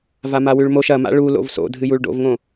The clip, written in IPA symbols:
v a m a w ʉ ɭ m o ʃ ɐ m a̰ ɭ u l o̰ v s o̰ dʱ ɨ j u ɭ ɖ o̰ v ŋ õ

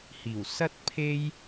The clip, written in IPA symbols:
h iː˨˩ w s ɐ˥ t̚ pʰ e˥ j

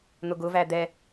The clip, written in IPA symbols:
n̪ ʊ ɡ ʊ v æ d̪ ɛ

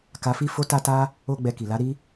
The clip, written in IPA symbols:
k a˧ f i˦ f o˦ t a˦ t a˦ | o˦ ɡ͡b ɛ˧ k i˨ l a˨˦ ɾ i˦

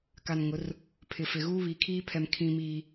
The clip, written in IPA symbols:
k a˨ n ŋ ʊ˨˦ r | pʰ ɪ˨ f ɪ˨ ɣ uː˦ β i˨˦ kʰ iː˦ pʰ ɛ˨ m kʰ ĩ˦ m iː˦

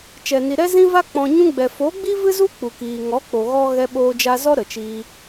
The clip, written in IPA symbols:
t͡ʃ ɛ˨ n i˨ ɾ ɛ˧ z ĩ˧ v a˧ k͡p ɔ̃˧ ɲ ũ˧ ɡ͡b ɛ˨ f o˨˦ ɡ͡b i˦ v ɨ˦ z u˦ k͡p u˨ k iː˨ ŋ ɔ˨˦ k͡p o˨ ɣ ɔ˧ ɣ ɛ˧ ɓ oː˧ d͡ʒ a˧ z ɔ˦ ɾ ə˨ t͡ʃ iː˧

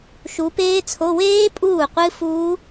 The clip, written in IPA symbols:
ʃ u˨˦ p eː˦˥ t͡sʰ o˧˥˧ w eː˦˥ pʼ uː˥˩ qʷ ɨ˦˥ f uː˦˥

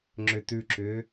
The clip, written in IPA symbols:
ŋ͡ǁ ʏ t ʉ ǁ ʏː

